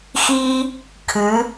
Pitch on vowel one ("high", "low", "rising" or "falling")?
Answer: high